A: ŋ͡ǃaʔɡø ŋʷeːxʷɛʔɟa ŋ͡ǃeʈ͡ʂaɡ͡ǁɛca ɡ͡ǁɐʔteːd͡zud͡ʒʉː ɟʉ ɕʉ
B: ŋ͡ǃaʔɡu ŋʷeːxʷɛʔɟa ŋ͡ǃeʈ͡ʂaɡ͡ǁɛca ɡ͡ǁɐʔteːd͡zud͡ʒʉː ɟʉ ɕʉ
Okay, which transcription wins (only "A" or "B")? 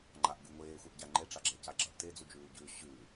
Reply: B